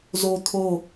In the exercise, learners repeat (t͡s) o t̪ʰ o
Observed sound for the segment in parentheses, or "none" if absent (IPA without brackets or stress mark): z